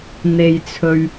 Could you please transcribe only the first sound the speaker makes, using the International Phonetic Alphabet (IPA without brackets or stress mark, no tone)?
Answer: n̪